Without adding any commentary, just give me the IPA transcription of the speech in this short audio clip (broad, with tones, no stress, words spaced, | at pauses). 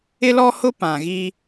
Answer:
ɪ˦lɔ˦hʊ˦ pã˨ɣi˦